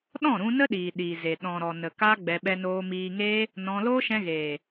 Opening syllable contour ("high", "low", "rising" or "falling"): falling